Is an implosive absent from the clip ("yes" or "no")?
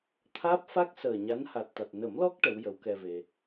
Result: yes